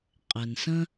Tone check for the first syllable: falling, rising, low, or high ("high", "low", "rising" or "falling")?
low